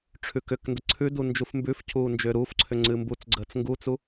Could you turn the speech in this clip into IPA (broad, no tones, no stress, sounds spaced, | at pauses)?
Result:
ʈ͡ʂʰ ʉ k ʏ k n d ə ǀʰ ʉ d u n d͡ʒ u f m b ʉ f cʰ uː n d͡ʒ ʏː ɾ uː f ǀʰ ʏ ŋ͡ǀ ɨ m b u t͡s ɡ͡ǀ əː t͡s ŋ ɡ u t͡s u